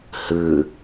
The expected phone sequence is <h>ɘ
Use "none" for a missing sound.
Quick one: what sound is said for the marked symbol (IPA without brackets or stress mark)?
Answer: h